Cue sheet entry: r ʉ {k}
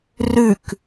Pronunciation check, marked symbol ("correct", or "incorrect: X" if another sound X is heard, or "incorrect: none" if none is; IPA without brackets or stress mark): correct